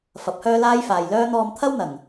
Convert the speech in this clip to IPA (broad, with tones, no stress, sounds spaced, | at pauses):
f ɐ˨˥ p̚ h œː˥ l aː˥ j f aː˨ j l œː˥ n̪ ɔː˧ m t̪ʰ ɐ˥ w n̪ ɐ˨˩ ŋ